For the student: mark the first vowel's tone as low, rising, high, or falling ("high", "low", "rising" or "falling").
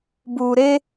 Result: low